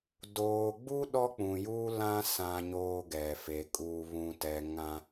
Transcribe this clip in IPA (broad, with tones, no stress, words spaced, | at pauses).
doː˨ɡ͡bu˦ ɗɔ˦k͡pũ˨juː˦lã˦ sã˦ɲoː˦ɡɛ˨fe˨ kʼuː˨βũ˨tɛ˨ ŋã˦